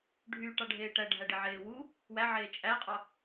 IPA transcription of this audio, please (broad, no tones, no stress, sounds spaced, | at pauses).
ɖʱ y ʈ ɑ ɖʱ eː ʈ æ ɖʱ æ ɖ e ʕ eː w u | w æ ʕ eː t͡ʃʼ æ qʼ ɑ